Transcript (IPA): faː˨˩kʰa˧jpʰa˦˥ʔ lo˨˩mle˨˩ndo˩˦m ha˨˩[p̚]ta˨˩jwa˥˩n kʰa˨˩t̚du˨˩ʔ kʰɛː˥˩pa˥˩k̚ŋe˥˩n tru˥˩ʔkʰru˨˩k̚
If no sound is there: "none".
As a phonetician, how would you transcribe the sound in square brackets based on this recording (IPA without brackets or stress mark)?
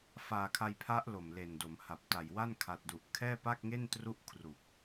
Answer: p̚